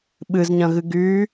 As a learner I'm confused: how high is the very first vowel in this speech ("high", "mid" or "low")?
high